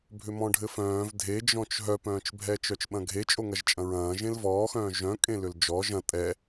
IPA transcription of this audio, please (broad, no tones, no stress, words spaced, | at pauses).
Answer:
bʱʏmɔ̃ɖʱɘfœ̃ːv dʱed͡ʒɔ̃t͡ʃ ɦœpœ̃ːt͡ʃbʱɛ t͡ʃœt͡ʃɓɐ̃ɡʱe t͡ʃʼoŋɐʒt͡ʃʼɐ̃ɹɐ̃ː ʒẽlvɔːxœ̃ː ʒœ̃kʼẽlʏl d͡ʒɔ ʒɐ̃ tʼɛ